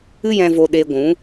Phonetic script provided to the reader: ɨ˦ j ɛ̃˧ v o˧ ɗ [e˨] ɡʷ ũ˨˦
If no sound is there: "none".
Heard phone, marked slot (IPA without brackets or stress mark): e˧